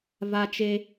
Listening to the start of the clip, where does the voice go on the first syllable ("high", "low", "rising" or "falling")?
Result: high